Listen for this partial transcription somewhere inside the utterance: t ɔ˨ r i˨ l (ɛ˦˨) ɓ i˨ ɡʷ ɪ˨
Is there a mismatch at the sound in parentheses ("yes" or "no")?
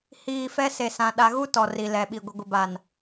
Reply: yes